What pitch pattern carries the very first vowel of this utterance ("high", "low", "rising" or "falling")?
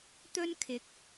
high